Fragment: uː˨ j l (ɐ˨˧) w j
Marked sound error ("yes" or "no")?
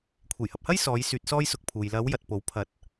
no